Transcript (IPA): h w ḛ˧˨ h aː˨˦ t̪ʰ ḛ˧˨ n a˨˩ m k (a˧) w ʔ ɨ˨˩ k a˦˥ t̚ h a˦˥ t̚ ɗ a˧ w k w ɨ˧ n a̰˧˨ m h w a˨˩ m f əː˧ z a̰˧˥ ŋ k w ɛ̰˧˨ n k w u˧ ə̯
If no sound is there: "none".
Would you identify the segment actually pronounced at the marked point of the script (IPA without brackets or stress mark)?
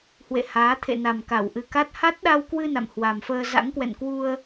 a˧˩